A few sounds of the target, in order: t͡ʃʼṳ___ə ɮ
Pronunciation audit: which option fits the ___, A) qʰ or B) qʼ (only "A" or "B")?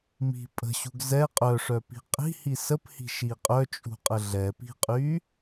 B